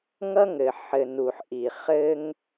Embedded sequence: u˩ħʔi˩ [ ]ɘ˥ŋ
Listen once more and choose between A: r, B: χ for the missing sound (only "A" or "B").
B